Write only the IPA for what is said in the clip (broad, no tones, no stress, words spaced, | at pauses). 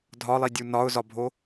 dʱɒlˠi dʲunɒʊ̯zɒbʱo